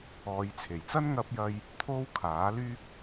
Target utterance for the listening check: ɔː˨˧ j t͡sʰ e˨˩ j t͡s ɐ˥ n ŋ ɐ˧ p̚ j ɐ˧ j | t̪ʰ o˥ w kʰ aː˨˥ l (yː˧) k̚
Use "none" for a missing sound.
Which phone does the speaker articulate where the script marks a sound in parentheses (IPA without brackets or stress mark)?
yː˥